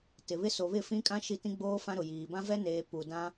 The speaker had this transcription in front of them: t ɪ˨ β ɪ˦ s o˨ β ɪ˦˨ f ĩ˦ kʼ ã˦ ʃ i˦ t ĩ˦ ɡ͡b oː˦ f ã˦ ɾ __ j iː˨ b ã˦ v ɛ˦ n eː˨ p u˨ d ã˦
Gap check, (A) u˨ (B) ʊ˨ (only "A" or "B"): B